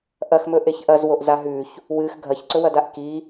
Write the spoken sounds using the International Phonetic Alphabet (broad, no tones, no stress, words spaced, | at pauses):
ʔɐxmɵʔeç ʔɐzwoʔza ɦʉç | wɨx ɡʱɐçǀɵwɐdaʔ ki